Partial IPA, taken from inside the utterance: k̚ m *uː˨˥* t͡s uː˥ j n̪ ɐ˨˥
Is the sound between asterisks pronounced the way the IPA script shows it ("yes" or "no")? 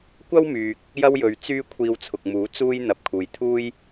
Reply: yes